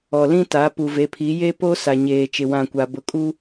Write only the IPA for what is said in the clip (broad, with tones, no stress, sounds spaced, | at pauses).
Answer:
ɔ˨ l ĩ˦ t a˨˦ p u˨ v e˨˦ pʰ i˨˦ j e˦ p o˦ s a˨ ɲ eː˨ t͡ʃ ɪ˨ w ã˦˨ kʷ a˨ b ʊ˨ kʼ u˦